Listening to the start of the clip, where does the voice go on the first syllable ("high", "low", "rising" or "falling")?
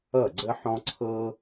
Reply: falling